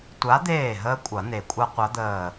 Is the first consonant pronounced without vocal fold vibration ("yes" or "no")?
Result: yes